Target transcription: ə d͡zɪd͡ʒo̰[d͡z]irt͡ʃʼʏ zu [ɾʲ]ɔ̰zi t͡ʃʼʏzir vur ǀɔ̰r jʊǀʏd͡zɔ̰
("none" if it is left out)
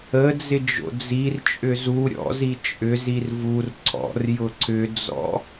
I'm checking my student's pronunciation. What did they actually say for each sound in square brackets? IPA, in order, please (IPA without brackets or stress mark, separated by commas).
d͡z, ɾʲ